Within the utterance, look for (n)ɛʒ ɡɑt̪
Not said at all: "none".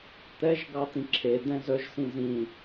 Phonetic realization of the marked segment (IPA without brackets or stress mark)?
t̪